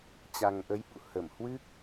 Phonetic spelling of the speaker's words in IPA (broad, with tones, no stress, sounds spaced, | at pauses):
t͡ɕ a˨˩ ŋ ʔ ə˨˦ j ɓ ṵ˧˨ h ə˧˩ m h w ɨ˦˥ k̚